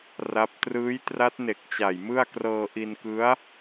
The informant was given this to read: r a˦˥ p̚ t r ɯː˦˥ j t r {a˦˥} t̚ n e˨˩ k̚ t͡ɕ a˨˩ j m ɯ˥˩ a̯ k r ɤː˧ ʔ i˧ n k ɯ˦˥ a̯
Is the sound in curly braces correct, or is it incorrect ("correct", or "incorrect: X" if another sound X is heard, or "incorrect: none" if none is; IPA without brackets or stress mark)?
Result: correct